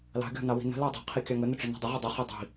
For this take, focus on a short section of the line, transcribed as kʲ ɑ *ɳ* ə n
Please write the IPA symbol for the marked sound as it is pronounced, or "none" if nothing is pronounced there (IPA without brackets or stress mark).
ŋ